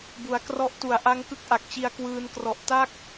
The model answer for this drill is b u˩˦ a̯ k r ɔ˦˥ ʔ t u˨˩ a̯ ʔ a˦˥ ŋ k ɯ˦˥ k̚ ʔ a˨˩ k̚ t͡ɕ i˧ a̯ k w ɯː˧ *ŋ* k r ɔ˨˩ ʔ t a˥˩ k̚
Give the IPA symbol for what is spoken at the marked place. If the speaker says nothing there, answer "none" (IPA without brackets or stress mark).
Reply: n